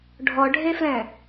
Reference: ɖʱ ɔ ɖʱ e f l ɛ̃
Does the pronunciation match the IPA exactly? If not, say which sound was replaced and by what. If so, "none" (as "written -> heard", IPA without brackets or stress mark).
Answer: none